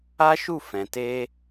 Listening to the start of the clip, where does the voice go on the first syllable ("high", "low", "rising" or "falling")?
high